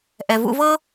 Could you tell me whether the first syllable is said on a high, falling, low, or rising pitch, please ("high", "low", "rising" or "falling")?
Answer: low